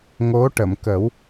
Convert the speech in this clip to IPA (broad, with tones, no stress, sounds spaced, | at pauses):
ŋ o˧˥ ʈ ə˨˩˨ m k ə˨˩˦ w